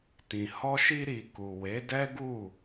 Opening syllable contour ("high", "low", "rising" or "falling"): low